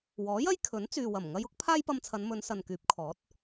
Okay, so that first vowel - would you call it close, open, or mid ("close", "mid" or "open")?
mid